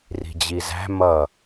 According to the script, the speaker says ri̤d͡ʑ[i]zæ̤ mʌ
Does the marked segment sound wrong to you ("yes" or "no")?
no